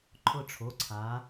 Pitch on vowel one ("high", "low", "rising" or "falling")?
falling